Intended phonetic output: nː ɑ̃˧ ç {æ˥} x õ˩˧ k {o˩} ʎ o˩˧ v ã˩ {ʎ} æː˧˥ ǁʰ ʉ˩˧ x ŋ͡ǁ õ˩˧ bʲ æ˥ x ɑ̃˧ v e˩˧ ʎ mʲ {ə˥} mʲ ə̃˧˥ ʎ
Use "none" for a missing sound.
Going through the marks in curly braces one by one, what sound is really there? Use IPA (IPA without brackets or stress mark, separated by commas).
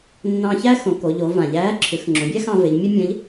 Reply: æ˥, o˩˧, ʎ, ə˥